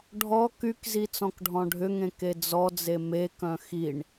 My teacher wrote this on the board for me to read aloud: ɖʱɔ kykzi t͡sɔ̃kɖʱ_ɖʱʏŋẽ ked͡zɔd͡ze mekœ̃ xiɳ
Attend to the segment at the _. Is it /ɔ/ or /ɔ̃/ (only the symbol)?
ɔ̃